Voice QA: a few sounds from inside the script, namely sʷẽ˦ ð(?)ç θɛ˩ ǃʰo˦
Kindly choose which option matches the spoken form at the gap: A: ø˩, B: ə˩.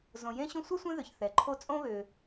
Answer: A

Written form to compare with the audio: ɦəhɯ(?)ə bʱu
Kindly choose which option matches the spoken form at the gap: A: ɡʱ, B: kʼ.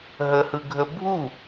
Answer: A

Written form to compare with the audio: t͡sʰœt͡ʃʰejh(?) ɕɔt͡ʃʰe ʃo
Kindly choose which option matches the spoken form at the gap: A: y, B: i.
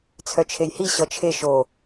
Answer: B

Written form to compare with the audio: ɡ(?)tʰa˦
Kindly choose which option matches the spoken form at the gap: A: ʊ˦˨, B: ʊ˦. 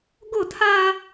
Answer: A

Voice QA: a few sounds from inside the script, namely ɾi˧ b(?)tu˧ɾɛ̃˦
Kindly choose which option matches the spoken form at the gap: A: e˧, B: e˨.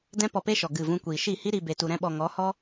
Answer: A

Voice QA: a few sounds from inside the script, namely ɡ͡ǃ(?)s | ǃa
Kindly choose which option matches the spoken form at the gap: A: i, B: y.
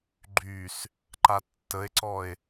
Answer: B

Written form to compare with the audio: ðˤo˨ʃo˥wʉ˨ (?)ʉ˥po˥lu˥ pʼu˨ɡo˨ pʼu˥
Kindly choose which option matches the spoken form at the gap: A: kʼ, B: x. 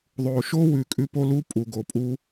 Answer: A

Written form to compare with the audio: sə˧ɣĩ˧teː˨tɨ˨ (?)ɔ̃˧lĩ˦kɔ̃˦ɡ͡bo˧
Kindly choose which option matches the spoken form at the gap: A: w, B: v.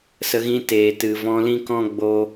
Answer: B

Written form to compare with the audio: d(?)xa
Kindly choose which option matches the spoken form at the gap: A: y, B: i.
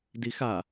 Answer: B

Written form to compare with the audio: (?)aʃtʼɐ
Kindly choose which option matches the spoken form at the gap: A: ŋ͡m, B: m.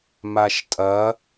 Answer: B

